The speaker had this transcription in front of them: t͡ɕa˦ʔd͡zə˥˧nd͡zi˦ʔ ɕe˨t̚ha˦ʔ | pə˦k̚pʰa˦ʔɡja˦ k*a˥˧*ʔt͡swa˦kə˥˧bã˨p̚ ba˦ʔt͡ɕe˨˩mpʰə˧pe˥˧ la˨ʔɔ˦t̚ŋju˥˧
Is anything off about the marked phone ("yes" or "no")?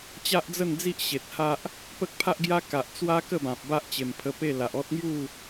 yes